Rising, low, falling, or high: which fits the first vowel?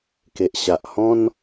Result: low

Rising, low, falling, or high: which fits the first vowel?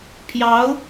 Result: rising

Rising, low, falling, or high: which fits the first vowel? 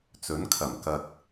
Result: rising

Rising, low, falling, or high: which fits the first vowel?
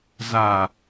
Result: low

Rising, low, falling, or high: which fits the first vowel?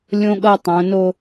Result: high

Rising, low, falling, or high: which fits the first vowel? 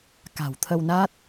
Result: low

